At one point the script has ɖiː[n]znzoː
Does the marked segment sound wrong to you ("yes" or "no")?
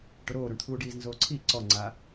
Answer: yes